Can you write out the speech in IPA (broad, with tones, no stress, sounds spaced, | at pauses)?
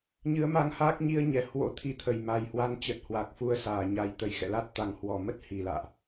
ɲ ɨ˨˦ ə̯ m a˧ ŋ h aː˦˥ k̚ ɲ i˧ ə̯ ɲ ɛ˧˩ h w o̰˧˥ t̪ʰ i˨˦ t̪ʰ ə˨˩ j m a˨˩ j h w a˨˦ n t͡ɕ ə˨˩ t̚ h w a˨˩ k̚ f u˧ ə̯ s aː˧˩ ɲ a˨˩ j t̪ ə˧˩ j x ɛ̰˧˨ l a˦˥ t̚ t̪ a˨˩ ŋ h w ɔ˧˩ m ə˦˥ t̚ h i˧˩ l a̰ː˧˨ ʔ